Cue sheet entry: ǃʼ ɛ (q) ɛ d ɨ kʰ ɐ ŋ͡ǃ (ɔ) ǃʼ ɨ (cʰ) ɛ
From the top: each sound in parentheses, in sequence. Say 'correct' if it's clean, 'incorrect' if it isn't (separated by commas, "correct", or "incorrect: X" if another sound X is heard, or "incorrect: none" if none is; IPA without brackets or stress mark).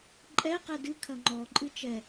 correct, correct, incorrect: t͡ʃ